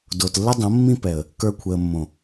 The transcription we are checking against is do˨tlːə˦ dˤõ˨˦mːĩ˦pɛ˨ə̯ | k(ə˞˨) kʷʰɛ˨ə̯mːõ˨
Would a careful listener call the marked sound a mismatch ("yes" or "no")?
no